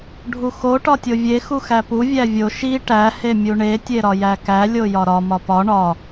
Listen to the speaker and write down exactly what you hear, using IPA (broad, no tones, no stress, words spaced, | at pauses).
ɖʱuxo ʈɒtʲovʲe xuxæpu vʲævʲo ʃi ʈæ hemʲuɳe tʲeɾɒjækæ lʲojɒɾɒ mɒpɒ ɳɒ